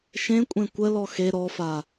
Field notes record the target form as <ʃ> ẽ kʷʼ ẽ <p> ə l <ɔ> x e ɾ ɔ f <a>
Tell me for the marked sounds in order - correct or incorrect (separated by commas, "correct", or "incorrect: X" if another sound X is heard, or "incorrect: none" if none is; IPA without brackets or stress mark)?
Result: correct, incorrect: kʷ, correct, correct